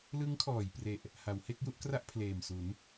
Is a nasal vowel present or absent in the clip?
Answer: absent